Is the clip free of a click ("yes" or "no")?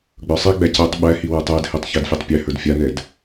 yes